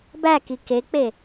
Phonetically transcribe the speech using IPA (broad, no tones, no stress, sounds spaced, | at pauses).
b æ k i k e k͡p e